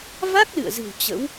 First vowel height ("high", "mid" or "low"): low